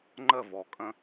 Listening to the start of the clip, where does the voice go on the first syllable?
falling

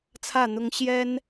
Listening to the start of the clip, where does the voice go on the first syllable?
falling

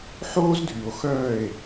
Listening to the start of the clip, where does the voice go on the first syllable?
high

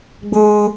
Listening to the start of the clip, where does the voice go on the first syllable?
high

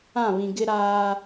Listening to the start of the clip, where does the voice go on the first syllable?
falling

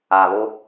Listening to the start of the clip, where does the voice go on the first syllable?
low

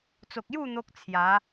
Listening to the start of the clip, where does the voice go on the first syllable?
low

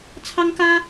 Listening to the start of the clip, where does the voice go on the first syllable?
high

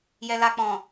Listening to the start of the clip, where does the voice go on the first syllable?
low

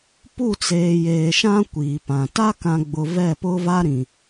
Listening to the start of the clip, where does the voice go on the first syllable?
falling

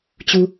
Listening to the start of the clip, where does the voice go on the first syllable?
high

